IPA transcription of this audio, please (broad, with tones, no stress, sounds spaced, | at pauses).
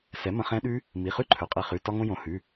s ɛ˩˥ m ə̃˧ χ ɛ̃˦˥ ɗ ʉ˦˥ | m i˩˧˩ χ ʉ˦˥ ǃʰ ɵ˩˥ qʼ e˧ χ ʉ˩˧˩ t ɒ˧ ŋ õ˧ j õ˩˥ h ʉ˩˧˩